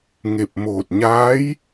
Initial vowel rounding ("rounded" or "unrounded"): unrounded